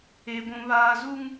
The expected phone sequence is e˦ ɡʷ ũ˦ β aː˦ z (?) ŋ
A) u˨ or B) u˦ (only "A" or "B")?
B